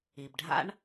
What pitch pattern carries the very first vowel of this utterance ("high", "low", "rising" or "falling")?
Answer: low